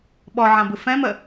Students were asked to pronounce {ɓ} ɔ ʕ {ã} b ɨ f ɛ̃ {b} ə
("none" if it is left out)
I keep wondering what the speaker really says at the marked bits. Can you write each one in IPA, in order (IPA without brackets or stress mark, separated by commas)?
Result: ɓ, ã, m